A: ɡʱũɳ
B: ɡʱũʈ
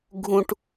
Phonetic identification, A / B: B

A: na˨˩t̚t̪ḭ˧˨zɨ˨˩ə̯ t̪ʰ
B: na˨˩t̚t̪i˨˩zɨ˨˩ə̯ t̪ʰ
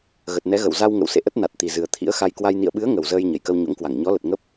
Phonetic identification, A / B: B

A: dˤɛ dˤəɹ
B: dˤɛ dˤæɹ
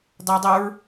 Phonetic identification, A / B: A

